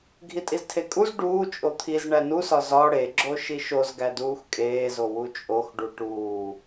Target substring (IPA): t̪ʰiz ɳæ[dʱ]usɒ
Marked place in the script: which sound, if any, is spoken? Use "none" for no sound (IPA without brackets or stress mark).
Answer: n